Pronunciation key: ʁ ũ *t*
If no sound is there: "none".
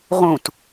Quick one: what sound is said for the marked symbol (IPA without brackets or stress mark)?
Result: t